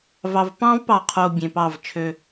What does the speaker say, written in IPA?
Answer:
v ɑ˨ v p ɑ̃˦ v p ɑ˨ qʰ o˨ bʲ ẽ˨ p ɑ˦˨ v t͡ʃʰ ø˦

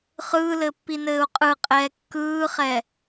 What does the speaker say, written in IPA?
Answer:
χ ɯː l ɘ pː i n ɘː u̯ qʼ ɯ qʼ ɛː kː ɯː χ ɛ

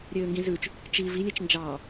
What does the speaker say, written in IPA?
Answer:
ɾʲ øː ŋ ɡ ĩ z ʉ t͡ʃ | t͡ʃ i v i lʲ e t͡ʃ n d͡ʒ ɑ

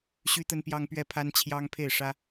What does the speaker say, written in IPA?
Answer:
ɕ y˥ t̪ ə˥ n p j ɑ˥ ŋ p ɥ ɛ˥˩ pʰ a˥ n t͡ɕʰ j ɑ˥ ŋ pʰ e˥˩ ɪ̯ ʂ ä˥

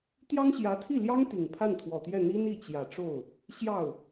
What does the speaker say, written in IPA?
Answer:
t̪ j ɑ˥ ŋ ɕ j ä˧˥ t̪ʰ i˥˩ l j ɑ˥ ŋ t̪ i˨˩ ŋ pʰ a˥˩ n t̪ʰ w ɔ˨˩ t̪ j ɛ˥˩ n̪ i˥ n i˥˩ t͡ɕ j ä˨˩ ʈ͡ʂ o˥˩ ʊ̯ | ɕ j ɑ˥˩ ʊ̯

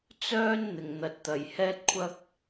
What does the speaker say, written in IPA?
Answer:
t͡s œː˥ n n̪ ɪ˨˩ ŋ n̪ ɐ˨˥ t̚ t̪ ɐ˨˩ j h ɛː˥ t̚ kʷʰ ɐ˥ k̚

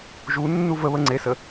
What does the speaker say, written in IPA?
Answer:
ʒ u nː u v ə β ə ŋ͡ǀ e s ə

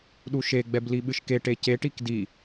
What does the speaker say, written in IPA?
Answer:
ɗ u ʃ e ɡ͡b ɛ b l i ɓ ɨ ʃ k e ʈ e c e ʈ i k d i

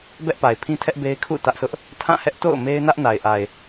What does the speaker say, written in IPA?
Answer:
b ɛ˦ ʔ p a˨ ɪ̯ pʰ ĩ˦ tʰ ɛ˦ ʔ b e˦ ɪ̯ kʰ ṵ˦˨ t ä˦ ʔ s ʊ˦ ʔ | tʰ ã˦˨ h ɛ˦ ʔ t o̰˦˨ ʊ̯ m e˦ ɪ̯ n ä˦ ʔ n a˨ ɪ̯ ʔ a˨ ɪ̯

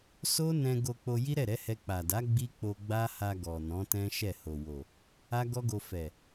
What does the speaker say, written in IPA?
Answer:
s o˦ n ɛ̃˧ ɡ o˧ k͡p o˧ j i˦ ɾ ɛ˦˨ ɾ ɛ˨˦ h ɛ˧ k͡p a˨ d a˨˦ ɡ͡b i˦ k͡p o˧ ɡ͡b a˦ h a˧ ɡ ɔ˨ n ɔ̃˨˦ t ɛ̃˦ ʃ ɛ˦˨ h o˨ w o˨ | a˦ ɡ ɔ˦ ɡ o˧ f ɛ˨

